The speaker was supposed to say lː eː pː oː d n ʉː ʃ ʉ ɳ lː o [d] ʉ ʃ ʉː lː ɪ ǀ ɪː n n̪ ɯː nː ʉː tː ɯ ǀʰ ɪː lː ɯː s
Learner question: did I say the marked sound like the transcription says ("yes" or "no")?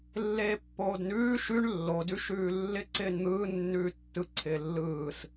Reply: yes